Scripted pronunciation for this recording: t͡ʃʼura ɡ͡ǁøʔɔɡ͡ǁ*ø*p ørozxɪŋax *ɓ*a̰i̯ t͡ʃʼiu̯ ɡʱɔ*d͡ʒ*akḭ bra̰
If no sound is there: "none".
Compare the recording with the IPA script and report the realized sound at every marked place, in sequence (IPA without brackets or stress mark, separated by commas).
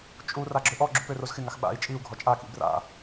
u, ɓ, t͡ʃʼ